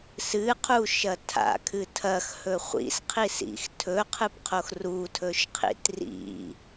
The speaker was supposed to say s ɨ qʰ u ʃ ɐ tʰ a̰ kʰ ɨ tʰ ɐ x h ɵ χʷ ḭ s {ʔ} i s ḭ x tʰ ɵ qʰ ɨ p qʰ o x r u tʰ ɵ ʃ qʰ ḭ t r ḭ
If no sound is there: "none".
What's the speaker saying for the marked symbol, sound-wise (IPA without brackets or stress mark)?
qʰ